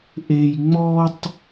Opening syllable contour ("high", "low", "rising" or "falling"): high